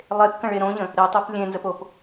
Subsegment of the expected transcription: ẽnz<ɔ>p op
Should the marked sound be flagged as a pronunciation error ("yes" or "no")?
yes